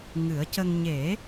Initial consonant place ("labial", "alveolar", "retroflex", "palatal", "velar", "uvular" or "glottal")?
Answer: velar